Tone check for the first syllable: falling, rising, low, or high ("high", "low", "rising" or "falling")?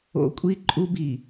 high